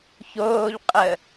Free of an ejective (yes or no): no